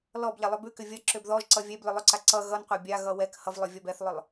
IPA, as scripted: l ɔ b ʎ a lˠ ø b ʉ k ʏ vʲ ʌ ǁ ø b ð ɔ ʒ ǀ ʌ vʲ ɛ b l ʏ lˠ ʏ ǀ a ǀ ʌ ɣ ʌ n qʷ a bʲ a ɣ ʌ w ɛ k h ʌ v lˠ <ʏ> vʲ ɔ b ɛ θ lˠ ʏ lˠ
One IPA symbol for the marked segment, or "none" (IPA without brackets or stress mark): ʏ